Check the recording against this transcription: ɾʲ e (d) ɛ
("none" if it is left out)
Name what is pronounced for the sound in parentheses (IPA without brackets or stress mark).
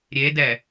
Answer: d